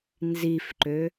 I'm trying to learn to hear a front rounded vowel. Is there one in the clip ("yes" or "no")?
yes